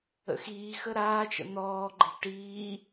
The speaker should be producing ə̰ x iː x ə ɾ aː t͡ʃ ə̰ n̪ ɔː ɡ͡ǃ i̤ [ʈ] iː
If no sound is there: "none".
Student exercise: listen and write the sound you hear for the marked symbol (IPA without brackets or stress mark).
ʈ